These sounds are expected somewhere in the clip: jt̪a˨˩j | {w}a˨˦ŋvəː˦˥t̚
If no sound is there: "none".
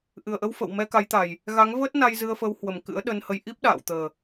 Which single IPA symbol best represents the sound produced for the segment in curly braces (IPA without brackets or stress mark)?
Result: ɣ